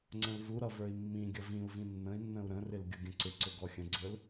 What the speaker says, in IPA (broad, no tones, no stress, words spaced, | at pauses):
ŋ͡ǀə̃lvuɾʌ və˞i̯mːĩɡʲʌ vĩu̯vĩ nːə̃i̯nːə̃u̯ ɾə̃rɪl ɡʲʊɡʲə̃ǀɪǀʊ ɡɔxʲə̃ɡ͡ǀə˞l